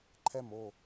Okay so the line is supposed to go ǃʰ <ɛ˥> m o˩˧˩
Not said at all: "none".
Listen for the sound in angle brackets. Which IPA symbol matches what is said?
ɛ˥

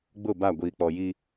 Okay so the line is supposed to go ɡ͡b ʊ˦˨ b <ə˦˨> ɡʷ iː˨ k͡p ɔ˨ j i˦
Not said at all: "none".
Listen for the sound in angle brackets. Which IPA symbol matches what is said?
a˦˨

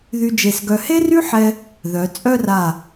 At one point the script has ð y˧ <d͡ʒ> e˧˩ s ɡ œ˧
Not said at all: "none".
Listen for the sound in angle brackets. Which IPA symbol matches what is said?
d͡ʒ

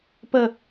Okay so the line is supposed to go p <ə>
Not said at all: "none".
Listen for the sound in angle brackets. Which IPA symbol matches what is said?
ə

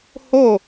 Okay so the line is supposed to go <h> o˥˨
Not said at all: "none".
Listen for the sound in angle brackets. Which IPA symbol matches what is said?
h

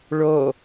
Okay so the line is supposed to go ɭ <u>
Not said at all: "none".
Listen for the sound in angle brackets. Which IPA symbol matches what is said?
o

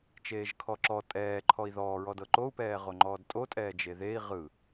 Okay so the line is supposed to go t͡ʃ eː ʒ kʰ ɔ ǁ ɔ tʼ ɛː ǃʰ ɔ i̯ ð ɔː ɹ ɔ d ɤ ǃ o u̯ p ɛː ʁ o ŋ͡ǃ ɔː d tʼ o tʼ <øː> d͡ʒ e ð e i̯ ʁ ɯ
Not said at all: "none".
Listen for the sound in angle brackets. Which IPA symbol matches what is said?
ɛː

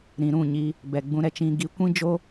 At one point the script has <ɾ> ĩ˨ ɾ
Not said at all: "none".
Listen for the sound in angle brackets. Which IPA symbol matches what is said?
ɾ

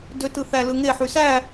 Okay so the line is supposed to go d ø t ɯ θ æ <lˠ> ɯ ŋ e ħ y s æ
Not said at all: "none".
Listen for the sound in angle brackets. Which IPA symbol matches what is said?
l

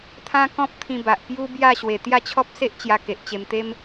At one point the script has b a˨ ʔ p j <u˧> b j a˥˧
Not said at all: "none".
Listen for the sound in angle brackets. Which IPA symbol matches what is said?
u˦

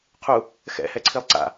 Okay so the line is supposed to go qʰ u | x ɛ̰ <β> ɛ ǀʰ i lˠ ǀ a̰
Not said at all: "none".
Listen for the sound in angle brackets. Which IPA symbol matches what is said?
h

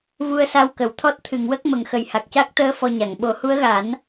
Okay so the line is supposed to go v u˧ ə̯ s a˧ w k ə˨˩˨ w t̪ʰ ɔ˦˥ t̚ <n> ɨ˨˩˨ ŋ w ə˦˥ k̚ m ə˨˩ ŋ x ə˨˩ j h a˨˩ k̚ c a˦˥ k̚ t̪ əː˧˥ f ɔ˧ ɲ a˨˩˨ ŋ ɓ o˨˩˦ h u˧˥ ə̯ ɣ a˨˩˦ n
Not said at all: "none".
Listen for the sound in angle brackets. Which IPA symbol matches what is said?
t̪ʰ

